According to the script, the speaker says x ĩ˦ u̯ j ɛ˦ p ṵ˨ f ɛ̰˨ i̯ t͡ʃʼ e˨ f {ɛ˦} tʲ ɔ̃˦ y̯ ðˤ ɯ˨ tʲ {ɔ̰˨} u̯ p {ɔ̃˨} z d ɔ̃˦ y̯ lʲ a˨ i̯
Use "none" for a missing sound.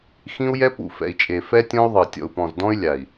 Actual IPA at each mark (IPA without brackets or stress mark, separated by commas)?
ɛ˦, ɔ̰˨, ɔ̃˨